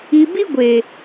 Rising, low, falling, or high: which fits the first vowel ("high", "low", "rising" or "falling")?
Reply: low